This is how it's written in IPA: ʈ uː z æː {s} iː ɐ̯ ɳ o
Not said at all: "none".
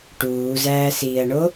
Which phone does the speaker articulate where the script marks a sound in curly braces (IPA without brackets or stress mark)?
s